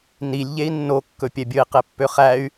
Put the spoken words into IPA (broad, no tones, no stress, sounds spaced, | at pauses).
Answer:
n i lʲ ʎ e i̯ nː o kː ɵ pʲ ɛ bʲ ɵ i̯ q e pː ø χ æ y̯